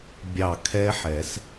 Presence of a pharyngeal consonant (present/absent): present